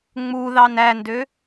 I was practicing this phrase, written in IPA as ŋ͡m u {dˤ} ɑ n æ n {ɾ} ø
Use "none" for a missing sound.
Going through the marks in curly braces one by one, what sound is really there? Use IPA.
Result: ð, d

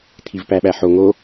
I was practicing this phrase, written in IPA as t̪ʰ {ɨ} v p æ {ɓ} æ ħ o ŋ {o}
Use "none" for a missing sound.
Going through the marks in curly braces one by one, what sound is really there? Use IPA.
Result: i, ɓ, o

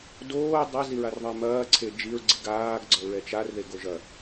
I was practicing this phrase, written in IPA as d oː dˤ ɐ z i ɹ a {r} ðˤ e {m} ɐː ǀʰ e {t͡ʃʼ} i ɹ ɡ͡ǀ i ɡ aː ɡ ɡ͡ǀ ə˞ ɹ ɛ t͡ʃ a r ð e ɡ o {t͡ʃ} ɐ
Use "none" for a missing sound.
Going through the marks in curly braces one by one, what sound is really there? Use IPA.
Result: r, m, d͡ʒ, ʒ

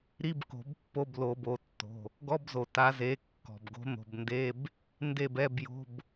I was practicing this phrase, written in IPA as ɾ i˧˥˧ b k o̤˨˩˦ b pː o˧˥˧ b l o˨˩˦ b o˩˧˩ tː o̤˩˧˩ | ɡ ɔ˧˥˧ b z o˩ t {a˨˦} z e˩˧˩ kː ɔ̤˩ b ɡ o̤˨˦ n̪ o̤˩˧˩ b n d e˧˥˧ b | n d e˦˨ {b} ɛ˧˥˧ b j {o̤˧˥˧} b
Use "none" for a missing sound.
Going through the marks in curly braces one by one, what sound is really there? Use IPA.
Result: a˨˦, b, o̤˧˥˧

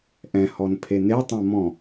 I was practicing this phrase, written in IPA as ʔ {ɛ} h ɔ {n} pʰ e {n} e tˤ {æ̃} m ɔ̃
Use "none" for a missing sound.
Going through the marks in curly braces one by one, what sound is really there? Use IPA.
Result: ɛ̃, n, n, ã

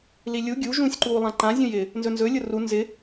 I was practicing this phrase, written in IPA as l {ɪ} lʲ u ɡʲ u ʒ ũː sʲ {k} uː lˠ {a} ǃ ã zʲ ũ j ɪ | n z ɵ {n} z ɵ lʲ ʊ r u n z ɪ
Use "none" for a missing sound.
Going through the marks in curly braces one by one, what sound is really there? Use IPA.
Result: i, ǃ, ã, n

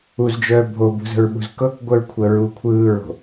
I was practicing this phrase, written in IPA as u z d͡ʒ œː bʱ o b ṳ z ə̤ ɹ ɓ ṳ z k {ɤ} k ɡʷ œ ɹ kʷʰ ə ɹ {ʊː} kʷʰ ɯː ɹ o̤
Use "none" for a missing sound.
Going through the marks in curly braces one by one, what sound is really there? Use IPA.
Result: ɤ, uː

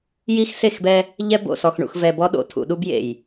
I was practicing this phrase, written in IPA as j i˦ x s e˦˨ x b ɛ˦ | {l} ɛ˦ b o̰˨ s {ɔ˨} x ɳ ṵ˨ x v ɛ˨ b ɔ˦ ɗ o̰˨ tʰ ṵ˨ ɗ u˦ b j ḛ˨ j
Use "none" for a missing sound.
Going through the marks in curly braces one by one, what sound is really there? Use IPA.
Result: ʎ, ɔ˨

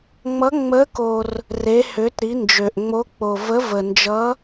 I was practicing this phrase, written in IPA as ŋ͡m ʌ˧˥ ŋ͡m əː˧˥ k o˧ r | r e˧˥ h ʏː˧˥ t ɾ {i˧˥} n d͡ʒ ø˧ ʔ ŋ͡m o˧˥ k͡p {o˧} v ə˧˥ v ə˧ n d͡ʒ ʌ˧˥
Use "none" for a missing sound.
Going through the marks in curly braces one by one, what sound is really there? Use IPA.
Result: i˧˥, o˧

